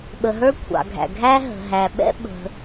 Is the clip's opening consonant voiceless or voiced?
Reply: voiced